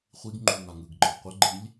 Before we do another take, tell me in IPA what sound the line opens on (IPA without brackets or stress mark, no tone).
χʷ